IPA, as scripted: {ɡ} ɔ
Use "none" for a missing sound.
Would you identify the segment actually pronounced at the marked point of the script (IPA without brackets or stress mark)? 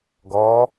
ɡ